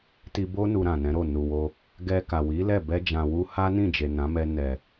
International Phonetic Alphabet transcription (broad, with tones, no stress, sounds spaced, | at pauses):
t i˧ b o˦ n u˧ ɾ ã˨ n ɛ̃˨˦ ɾ o˦˨ n u˨ w o˧ | ɡ ɛ˧ k a˨ w i˨˦ l ɛ˦˨ b ɛ˧ d͡ʒ ã˨ w u˧ h a˦ n ĩ˦˨ d͡ʒ e˨ n ã˨˦ m ɛ˧ n ɛ˨